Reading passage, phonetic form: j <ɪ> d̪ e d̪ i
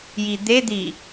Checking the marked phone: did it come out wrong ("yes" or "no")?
yes